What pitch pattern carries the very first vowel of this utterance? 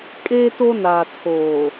high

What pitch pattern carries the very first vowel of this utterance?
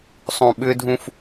low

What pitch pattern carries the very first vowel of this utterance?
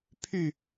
falling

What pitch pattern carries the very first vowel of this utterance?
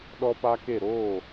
high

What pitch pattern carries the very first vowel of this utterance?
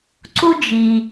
high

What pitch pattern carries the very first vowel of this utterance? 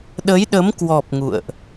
rising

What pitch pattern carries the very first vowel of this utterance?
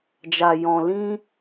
low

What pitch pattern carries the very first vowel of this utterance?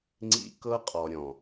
high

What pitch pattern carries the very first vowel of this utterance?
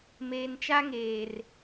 low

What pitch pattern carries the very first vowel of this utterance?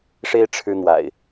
high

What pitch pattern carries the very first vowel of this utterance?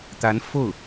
rising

